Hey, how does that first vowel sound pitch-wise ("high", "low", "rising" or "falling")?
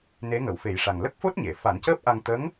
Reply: rising